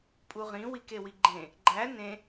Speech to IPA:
pʼ u ʁ ĩ w i k e w i ɡ͡ǃ ẽ | ɡ͡ǃ æ n ẽ

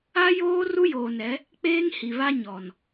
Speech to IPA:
a˦ j oː˦ r u˦ j oː˨ n ɛ˨˦ | k͡p eː˦ ŋ h i˨ β a˦ ɲ ɔ˨ n

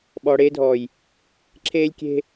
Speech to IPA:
ɓ ɔː˨ ɽ eː˦ dʱ ɔː˨ j | ǁʰ eː˦ lʲ kʲ e̤˦

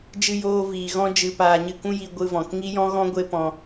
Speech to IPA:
d͡ʒ ɨ˧ j oː˧ v iː˨ ɣ ɔ̃˦ d͡ʒ ɨ˧ p aː˧ ɲ ɨ˧ k ũ˦ j i˧ ɡʷ ɨ˧ v ɔ̃˨ k ŋ i˦ j ɔ̃˦ ɣ ɔ̃˦ ɡʷ e˦ p ɔ̃˧

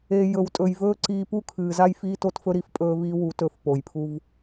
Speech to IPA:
e˨ j ɵ˨ w tʼ ɵ˨ j v ɵː˦ ǀ iː˧ p u˦ kʰ ɨː˨ z a˦ j f iː˧ t o˧ t f ɵ˧ ɾ i˨ f pʼ ɵː˧ v iː˧ w u˨˦ t ɵ˦˨ f p o˨ j pʰ u˦ v

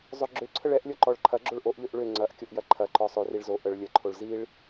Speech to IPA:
zˤ ø ɡ͡ǁ ø ǀʰ ə ɭ ɛ ʔ lʲ ɔ ǃ ɔ ɭ ǃʰ ɐ ɡ͡ǁ o ɭ ʔ o ʔ ʎ ø ʔ ɭ ø ŋ͡ǀ ɐ ʔ kʲ o ʔ j ɐ ǃʰ ɐ ǃ ɔ sˤ ø r i ɭ z o ʔ ə ɭ lʲ ə ǃʰ o ɭ z i ɭ

